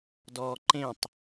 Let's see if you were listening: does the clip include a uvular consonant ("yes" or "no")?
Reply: no